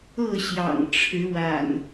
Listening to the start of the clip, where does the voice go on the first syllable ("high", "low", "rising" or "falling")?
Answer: falling